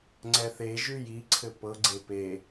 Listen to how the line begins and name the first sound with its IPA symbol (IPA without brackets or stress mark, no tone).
ŋ͡ǀ